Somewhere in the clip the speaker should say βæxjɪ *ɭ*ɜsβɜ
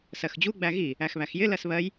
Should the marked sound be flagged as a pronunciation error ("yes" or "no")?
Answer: yes